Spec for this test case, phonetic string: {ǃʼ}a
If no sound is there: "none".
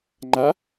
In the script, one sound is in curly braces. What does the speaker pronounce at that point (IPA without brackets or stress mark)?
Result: ŋ͡ǃ